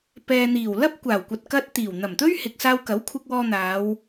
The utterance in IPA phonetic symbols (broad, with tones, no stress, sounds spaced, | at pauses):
p ɛː˨ n̪ iː˨˩ w l ɐ˥ p̚ kʷ aː˨˩ w kʷ ɐ˨ t̚ k ɐ˧ t̚ t̪ iː˨˩ w n̪ ɐ˨˩ m t̪ ɵ˥ ɥ h ɪ˨ k̚ s aː˧ w k ɐ˨˥ w kʷʰ ɪ˧ k̚ w ɔː˧ n̪ aː˨˧ w